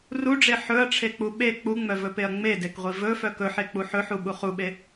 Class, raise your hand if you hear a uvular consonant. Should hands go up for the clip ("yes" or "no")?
yes